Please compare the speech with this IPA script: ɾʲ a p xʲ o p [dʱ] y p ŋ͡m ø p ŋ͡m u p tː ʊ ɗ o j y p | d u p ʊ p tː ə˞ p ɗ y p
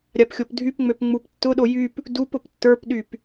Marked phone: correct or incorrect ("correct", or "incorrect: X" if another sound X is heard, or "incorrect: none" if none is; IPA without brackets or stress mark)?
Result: correct